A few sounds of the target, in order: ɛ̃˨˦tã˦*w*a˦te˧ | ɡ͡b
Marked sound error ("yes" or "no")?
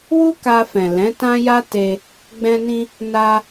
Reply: yes